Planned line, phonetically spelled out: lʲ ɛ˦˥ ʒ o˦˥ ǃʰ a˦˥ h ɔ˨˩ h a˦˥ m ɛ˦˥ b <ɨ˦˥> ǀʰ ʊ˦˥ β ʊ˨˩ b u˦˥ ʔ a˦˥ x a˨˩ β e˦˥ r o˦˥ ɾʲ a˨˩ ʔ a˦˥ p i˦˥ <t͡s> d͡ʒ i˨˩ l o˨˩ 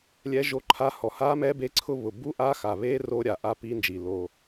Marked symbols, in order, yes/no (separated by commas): no, no